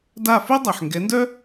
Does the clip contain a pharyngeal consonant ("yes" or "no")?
yes